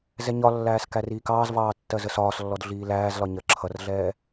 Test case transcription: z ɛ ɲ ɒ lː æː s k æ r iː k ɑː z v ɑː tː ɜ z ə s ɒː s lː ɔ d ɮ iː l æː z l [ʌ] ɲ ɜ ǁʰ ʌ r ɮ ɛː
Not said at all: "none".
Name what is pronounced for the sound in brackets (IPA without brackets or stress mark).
ɒ